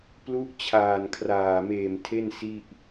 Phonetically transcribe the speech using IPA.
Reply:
plu˦˥ʔt͡ɕʰaː˨˩nkʰraː˨˩meː˨˩m tʰe˥˩nsi˥˩ʔ

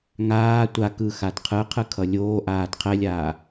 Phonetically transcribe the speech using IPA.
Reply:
ŋaː tʷa kɯxad qʰɯqʰɯ kʰʌlʲoːʔaːd qʰɛlʲaː

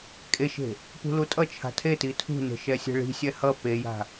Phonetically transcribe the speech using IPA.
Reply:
kʼeʃe̤ | pṳlutʼʌt͡ʃʰa̤ tʰeti tʰṳne̤ ʃɛsʲɛ̤ɭi̤sʲɛ hʌ peja̤

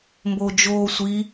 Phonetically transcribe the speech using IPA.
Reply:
mboːd͡ʒoːsʷi

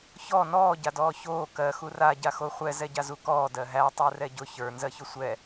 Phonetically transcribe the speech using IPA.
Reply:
çɔ nɔː ɟadɔːçoː kɜ xura ɟaxoχʷɛ zɛɟazukɔː dɜɦæ tˤə˞rɛɟʊ çə˞ nzɜçʊsʷɛ

